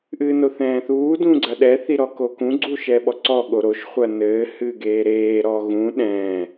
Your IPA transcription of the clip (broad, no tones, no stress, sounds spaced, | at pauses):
ʔ ɨː n o θ ɛ̃ː θ uː d ũ ɡ͡ǀ ɐ ɗ ɛ θ i ɾ ɔ k o k ũ ɡ͡ǀ u ʃ ɛ ɓ ɔ ǀ ɔ ɠ o ɾ o ʃ χʷ ɐ n ɘː h ɨː ɡ eː ɾ eː ɾ ɔ ɣ ũ ɗ ɛ̃ː